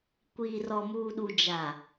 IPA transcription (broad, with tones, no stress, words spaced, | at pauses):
kʷiː˨rɔ˨muː˨ɗu˨ d͡ʒa˨